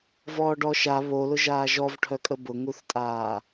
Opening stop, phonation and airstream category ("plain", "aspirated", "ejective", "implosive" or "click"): plain